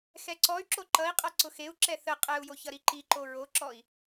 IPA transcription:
x ɛ ǀ ɔ y̯ ǁ o ǃ ʌ i̯ qʼ ʌ ǀ ʊ x e u̯ ǁ ɛ θ ə qʼ ɛ u̯ j o ç ʌ ɾ i ǃ i ǃ o ɹ o ǁ ɔ i̯

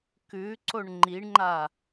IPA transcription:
k ʉ ǀ o ɳ ŋ͡ǃ i ɳ ŋ͡ǃ a

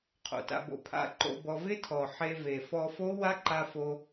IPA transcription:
qʰ o̰˨˩ t a̰˧ b o̰˧ pʰ a̰˧ ǃ o̰˧ b ɔ˧ v ɪ˦˥ tʰ ɔ˨˩ ħ e˧ v e˨˩ f ɔ˧ f o˦˥ w a˦˥ ǃ a˧ f o˧

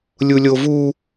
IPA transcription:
lʲ u lʲ o v u

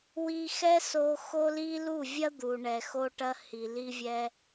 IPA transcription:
w i˧ x ɛ˦ s o˧ x o˦ l i˦ l u˦˨ vʲ ɐ˦ d̪ u˨ ɳ ɛ˨ x o˧ ʈ ɐ˧ h i˨ l i˧ vʲ ɛ˧

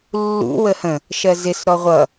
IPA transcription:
lː ṵ w ə h ə̃ | ʃ ɜ z ɪ s ɾ ɔ ʁʷ ʌ

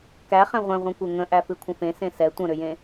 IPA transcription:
k æ χ ɛ̃ ʁʷ ɛ̃ ʁʷ ɛ̃ kʷ e ŋ ə̃ ʔ æ f ɨ kʷʰ ə̃ f ẽ s ẽ s ɛ tʷ ə̃ ɾ ʏ j ẽ

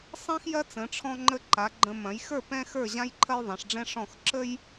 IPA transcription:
sˤ ɛ̃˥ x j ɐ˥ t͡s ə̃˩˧ ʈ͡ʂʰ ɔ̃˧ ŋ͡ǃ ə˧ ǃ a˩˧ ɡ͡ǃ ə̃˧ m ɐ̃˩˧ j x ə˞˥˧ p ɛ̃˥ x ə˞˥˧ ʑ ã˥ j ǃʰ ɐ˥ j ðˤ ɛ̃˩˧ ʂ ɖ͡ʐ ɛ̃˥ ʂ ɔ̃˥˧ x ǁ ə˥ j

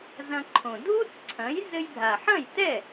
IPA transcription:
z ɐ̃˧ ǃʰ õ˩ dʱ u˥ t͡s ǀʰ ɐ̃˩˥ j z ɘ˧ j bʱ a˩ ħ ɐ̃˥˩ j t ɛ˥˩

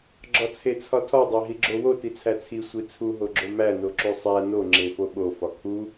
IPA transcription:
ɡ͡ǁ ɒ t͡sʰ e t͡sʰ ɒ tʰ ɒ dˤ æ ɦ i ɡ͡ǁ o w o t i t͡sʰ æ t͡sʰ i sʷ i t͡sʰ u ɦ o ɡ͡ǁ o m æ n o ǁ u sˤ æ n o ŋ͡ǁ e f o ɓ o f ɒ kʰ u

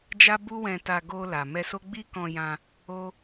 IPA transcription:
d͡ʒ a˦ b u˦ w ɛ̃˧ t a˧ ɡ o˧ l a˨ m ɛ˧ s o˦ ɡ͡b i˦ k ɔ̃˧ j ã˧ | o˦

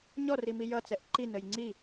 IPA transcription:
ɲ ɔ r i m i j ʌ t͡s ɛ ʔ ǃ i n ə j ŋ͡ǀ i

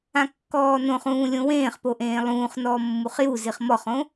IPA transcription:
ã kː ɔː n õ χ ũː lʲ õ w ẽː χ p o ʔ ẽː lˠ ũː χ n ɔː mː u χ j u z i χ m ɔ χ õ

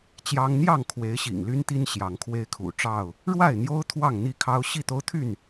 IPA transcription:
t͡ɕ j ɑ˦ ŋ n̪ j ɑ˥˨ ŋ kʰ w e˨˦ ɪ̯ ɕ ḭ˨˩ ŋ l y˦ n t̪ i˦ n ɕ j ɑ˨˦ ŋ kʰ w e˦ ɪ̯ kʰ ṵ˨˩ ʈ͡ʂ ɑ˥˨ ʊ̯ | ɻ w a˥˨ ɪ̯ n̪ j o˦ ʊ̯ t̪ʰ w ɑ˥˨ ŋ n̪ i˥˨ kʰ ɑ˦ ʊ̯ ɕ i˥˨ t̪ o˦ ʊ̯ t̪ʰ y˥˨ n

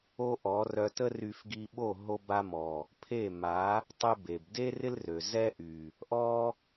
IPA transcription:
o˦ ʔ ɔ˨˦ r œ˧ t ə˦ r y˧ f ɡ i˧ ɓ o˦˨ ɦ o˦ b a˦ m ɔ˨ | pʰ e˦˨ m a˨˦ | tˤ e˦ b e˨ b d e˦ r ɪ˦ l r ø˨ z ɛ˦ ʔ y˨ | ʔ ɔ˦

